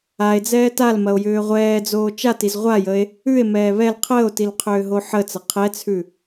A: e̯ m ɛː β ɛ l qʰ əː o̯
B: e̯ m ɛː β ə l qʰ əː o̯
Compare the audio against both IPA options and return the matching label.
A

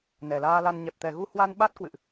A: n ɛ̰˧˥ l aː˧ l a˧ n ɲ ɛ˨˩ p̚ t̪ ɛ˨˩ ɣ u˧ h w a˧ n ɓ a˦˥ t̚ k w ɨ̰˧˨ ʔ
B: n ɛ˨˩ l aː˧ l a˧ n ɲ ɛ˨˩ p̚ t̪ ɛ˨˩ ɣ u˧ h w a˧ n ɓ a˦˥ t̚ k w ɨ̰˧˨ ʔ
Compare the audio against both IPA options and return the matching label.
B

